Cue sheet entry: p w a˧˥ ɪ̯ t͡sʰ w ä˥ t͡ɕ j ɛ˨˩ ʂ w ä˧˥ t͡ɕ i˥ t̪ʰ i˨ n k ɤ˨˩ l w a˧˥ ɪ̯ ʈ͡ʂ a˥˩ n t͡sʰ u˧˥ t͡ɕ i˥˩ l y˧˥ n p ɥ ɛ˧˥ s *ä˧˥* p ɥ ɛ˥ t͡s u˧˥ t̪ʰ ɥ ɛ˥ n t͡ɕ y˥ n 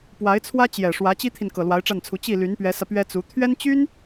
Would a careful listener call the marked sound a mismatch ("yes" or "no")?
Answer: yes